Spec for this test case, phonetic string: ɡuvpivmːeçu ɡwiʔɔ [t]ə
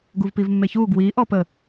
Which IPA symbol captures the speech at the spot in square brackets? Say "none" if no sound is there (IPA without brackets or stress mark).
p